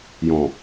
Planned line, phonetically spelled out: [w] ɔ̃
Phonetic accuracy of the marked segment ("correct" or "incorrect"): incorrect